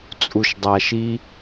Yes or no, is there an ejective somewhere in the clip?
yes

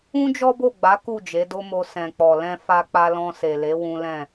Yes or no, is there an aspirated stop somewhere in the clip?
no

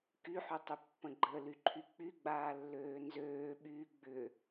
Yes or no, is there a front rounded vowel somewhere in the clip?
yes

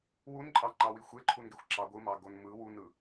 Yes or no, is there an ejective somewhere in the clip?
yes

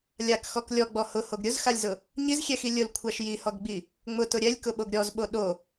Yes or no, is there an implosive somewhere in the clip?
yes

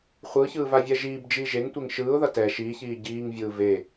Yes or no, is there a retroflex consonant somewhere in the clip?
no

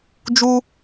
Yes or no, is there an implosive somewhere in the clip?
no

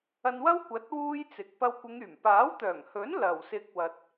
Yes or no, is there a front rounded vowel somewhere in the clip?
yes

